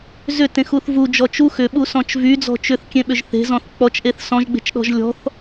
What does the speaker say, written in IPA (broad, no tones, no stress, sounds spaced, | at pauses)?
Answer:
z ʏ t ẽ x u θ v u d͡ʒ ɔ t͡ʃ u x ʏ ɓ u s ɔ̃ t͡ʃ v y d͡z ɔ̤ t͡ʃ ʏ θ kʲ ẽ ɓ ʏ ʒ θ e̤ z ɔ̃ θ k͡p ɔ t͡ʃ ʔ e θ s ɔ̃ ʒ ɡ͡b e̤ t͡ʃ ɗ ɔ̤ ʒ lʲ ɔ̤ θ